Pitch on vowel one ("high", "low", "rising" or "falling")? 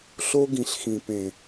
high